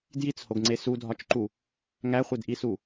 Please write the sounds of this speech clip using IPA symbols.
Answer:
d j i t͡s h o ɡ ŋ͡ǀ e s u dʱ ɒ t͡ʃ ǃ u | ŋ æ χʷ e d ʔ i s u

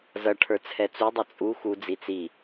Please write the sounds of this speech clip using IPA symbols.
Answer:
z ʌ ʈʰ ə˞ t͡sʰ ɛ t͡s u dˤ ʌ t͡sʼ u x u d͡z i t͡s i

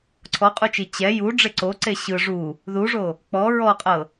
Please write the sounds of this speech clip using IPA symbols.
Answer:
ǀʰ ɔ qʼ u t͡ʃ i t͡ɕ ɛ j u ɖ͡ʐ e ǀ o ǀ e ɕ ɯ ʐ u | ð u ʐ o | k͡p ɔ ɹ ɔ qʼ ɤ

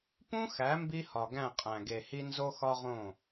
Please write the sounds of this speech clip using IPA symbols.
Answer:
p ũ˦ x æ˨˦ m b i˦ h ɒ˨ ɡ æ̃˦˨ qʼ æ̃˨ ɡ e˨ h i˦ n z o˦ x ɒ˦ ʁ õ˦˨

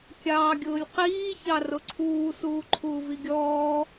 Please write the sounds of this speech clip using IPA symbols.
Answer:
kʲ ɑː ɡʲ ʊː lʲ q iː ç ɑ r ʊ ǀʰ uː s uː ǃʰ uː v i ɡʲ ɔː

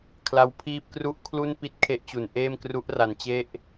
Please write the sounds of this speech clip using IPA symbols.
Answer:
kʰ l a˦˥ w pʰ iː˥˩ p̚ k r u˥˩ ʔ kʰ l u˥˩ n p i˥˩ t̚ kʰ e˦˥ ʔ t͡ɕ u˩˦ n ʔ eː˥˩ m k r u˦˥ ʔ r a˩˦ n t͡ɕ e˦˥ ʔ

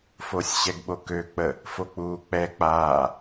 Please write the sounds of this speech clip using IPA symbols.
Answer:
f o sʲ ɕ ɛ ɡ ɓ o k ø k͡p ə | f o k͡p uː k͡p ɛ k͡p aː

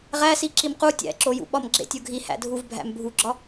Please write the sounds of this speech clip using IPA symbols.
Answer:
ʁ æ s i ǁ i m q u tʲ æ̰ ǁ o j ṵ ɓ ɒ m ɡ͡ǁ ḛ tʲ o ɡʱ i h æ̰ dʱ u v bʱ æ̰ m bʱ u ɡ͡ǁ ɒ

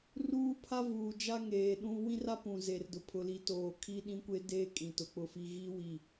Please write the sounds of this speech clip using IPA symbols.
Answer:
r uː˦ pʰ a˦ v uː˨ d͡ʒ a˦ ŋ eː˨ ɗ ũ˦ w ĩ˦ r a˦ p ũ˨ z e˨ r d ʊ˨ pʰ ʊ˨ l i˨ t oː˨ kʰ i˦ ɗ ĩ˦ kʷ e˦ d eː˦ kʼ ĩ˨ t ʊ˨ k͡p ʊ˦ f i˦ ɣ i˦ w i˨

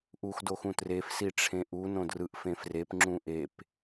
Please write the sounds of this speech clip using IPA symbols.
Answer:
ʔ u x d o x ũ t r e f s i ʈ͡ʂʰ ẽ ʔ u n õ d r ɯ ʔ f ẽ f r e p ŋ͡ǁ ũ ʔ e p

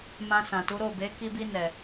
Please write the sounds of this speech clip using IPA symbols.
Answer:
m ã˧ s ã˨ t u˨˦ ɾ o˦˨ b e˨˦ k i˧ b i˧ n ɛ˨

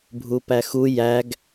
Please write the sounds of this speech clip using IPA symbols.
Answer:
bʱ u p æ x u j æ ɡ

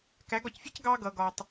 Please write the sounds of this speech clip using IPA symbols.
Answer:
k æ˨˦ ɡ ɒ˨ c fʲ ɜ˦ c ɡ ɑː˧ ɡ ʌː˨ ɡ ɒː˨ tˤ

